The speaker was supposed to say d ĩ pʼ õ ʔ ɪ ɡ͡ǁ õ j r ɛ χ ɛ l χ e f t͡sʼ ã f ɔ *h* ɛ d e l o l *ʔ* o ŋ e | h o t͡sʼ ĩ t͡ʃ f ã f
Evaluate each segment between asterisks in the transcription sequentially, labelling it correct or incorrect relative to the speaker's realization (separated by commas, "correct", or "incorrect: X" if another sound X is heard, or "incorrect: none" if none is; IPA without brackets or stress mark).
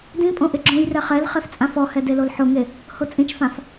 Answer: correct, incorrect: ħ